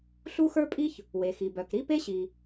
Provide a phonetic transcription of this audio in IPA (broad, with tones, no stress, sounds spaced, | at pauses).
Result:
ɬ u˥ x ə˞˥ pʼ i˥ ç | w e˩ x i˩ b œ˩ k ɾ i˥ p e˥ ɕ i˩